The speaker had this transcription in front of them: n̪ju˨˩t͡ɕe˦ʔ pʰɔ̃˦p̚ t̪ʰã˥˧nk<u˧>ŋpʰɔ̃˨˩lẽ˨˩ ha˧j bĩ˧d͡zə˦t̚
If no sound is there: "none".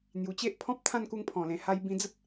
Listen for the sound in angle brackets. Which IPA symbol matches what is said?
u˧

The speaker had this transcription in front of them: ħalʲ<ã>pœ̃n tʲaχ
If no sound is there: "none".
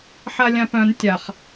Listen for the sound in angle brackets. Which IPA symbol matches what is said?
ã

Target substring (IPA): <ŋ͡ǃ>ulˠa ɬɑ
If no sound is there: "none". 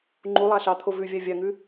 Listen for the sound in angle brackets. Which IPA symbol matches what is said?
ŋ͡ǃ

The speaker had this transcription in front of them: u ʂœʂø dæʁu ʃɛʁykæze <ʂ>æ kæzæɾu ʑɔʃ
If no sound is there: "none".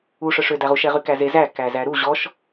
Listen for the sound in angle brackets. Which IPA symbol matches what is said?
z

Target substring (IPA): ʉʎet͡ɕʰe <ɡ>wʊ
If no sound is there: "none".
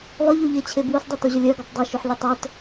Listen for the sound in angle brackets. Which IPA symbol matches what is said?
b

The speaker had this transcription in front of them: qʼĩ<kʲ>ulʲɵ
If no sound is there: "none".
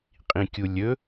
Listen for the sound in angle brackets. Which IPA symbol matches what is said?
kʲ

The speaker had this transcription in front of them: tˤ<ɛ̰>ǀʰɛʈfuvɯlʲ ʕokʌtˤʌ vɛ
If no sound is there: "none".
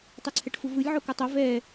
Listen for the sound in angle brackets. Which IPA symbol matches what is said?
ɛ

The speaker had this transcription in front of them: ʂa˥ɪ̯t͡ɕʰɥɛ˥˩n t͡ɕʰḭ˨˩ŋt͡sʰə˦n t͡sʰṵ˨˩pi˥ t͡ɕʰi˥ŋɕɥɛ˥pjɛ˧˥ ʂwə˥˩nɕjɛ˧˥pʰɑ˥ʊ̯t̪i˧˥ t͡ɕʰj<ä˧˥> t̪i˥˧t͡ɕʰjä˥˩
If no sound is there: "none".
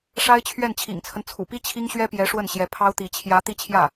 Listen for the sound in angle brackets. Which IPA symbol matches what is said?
ä˧˥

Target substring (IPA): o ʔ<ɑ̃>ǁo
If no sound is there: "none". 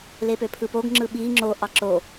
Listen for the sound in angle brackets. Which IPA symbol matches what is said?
ɑ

